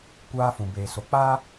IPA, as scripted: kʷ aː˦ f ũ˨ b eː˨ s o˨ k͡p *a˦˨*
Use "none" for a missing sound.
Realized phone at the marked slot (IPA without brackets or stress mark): a˦